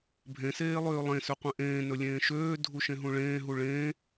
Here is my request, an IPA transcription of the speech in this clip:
bʱẽ seːlˠøːlˠẽ søqʷẽʔẽː nɵlʲẽːʃøː dʱuʃẽɦũɭẽː ɦuɭẽː

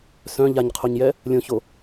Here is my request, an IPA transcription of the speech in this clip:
sœ̃ ʎaɲqʰoɲjɛ | lʲõço

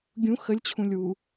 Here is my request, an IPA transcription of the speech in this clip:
ɡʲũ xəlʲt͡ɕʰũlʲwu

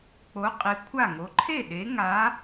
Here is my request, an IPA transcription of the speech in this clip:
k͡po˨˥qʼi˨˥ kʷʰa˥˩ŋo˨˥ ǃʰe˥˩ ɗe˨˥ŋa˨˥

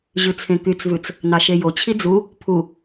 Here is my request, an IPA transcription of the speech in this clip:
ʑʉt͡sʰẽkyt͡svʉt͡s | nɑʃejot͡ɕʰi d͡zu | pʰu

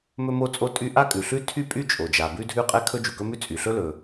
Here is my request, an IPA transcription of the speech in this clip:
mɵ˥mo˥t͡sʼo˥tʼy˥ ʔa˥kʼʉ˩ɬʉ˥ tʰy˥ pʼy˥t͡ʃʼo˩d͡ʒa˩ bʉ˥dʱʉ˥qʼɛ˥ kʰɵ˥d͡ʒu˩kɵ˥mʉ˥ t͡sʼy˩ɬɵ˥lɵ˩

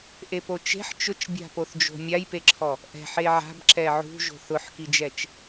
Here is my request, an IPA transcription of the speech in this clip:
ʔepot͡ʃe̤ħ t͡ʃʊt͡ʃbʲa̤poθd͡ʒo̤ mʲajpeǁʰɔ | ʔɛ̤ ħeʕa̤b ǁɛʕṳ ʒo̤θʊħkid͡ʒɛt͡ʃ

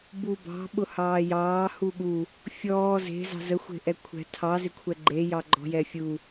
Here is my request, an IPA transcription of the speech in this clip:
bubɑ̤ ɓʊhɑːjɑː huɠu | fʲɔː ze̤ zɑ̤zə xʷe̤ʔɛkʷʰɛ̤ tʰɑ zɪkʷʰɛɡ͡ǃe jɑɡ͡ǃɔ̤jɛfʲu

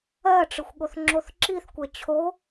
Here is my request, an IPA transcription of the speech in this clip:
ɜʈ͡ʂɯxʷɠoθ ŋ͡ǁoθǁiθkʷɛ t͡ɕʰo

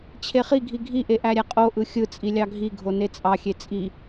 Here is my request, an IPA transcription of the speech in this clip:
t͡ɕʰeχiɡʱi ɡʱiʔe ʔæɾʲæqʼoʔɯ xʲɯ t͡sʼilʲɑɡʱiɡʱo net͡sʼɑxʲe t͡sʼi

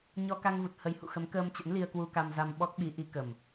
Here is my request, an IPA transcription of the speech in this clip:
ɲɔ˧ka˧ŋvu˨˩t̚ hə˨˦jhṵ˧˨xə˨˦m kəː˧mt͡ɕə̰˧˥n li˧ə̯kwu˧ka˧mza˧m ɓɔ˦˥k̚ɓi˨˦ʔi˨˦ kə˨˩m

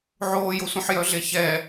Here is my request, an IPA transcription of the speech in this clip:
ʕoːjosʷœ̃ħ jœɮeçɛ

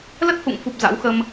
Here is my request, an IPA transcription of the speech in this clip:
lə˦˥t̚hṵ˧˨ŋfu˨˩p̚ za̰˧˥wxə˧m

